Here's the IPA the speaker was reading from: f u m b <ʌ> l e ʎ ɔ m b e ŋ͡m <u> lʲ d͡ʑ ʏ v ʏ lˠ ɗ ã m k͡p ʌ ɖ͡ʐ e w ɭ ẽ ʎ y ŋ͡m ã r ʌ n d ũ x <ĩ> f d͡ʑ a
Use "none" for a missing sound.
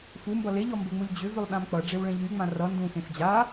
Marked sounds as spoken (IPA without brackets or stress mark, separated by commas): ʌ, u, ẽ